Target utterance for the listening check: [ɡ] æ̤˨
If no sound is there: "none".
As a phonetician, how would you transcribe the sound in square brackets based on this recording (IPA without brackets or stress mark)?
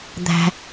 d̪